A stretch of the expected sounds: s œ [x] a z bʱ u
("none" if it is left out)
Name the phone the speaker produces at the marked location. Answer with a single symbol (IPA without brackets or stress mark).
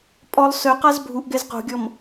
q